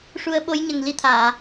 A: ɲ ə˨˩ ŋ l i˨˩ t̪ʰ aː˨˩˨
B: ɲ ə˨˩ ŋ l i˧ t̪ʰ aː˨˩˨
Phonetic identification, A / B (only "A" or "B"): B